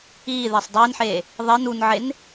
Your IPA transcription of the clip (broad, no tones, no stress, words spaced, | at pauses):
iːðesˤ dˤiːnħeː | ðˤen unʕen